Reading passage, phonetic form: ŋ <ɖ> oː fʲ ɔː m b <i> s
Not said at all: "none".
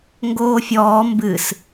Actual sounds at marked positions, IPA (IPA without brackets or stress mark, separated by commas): ɡ, ɨ